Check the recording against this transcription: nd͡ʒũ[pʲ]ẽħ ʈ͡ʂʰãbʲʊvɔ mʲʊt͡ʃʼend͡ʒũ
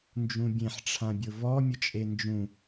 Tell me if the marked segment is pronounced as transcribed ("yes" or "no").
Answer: no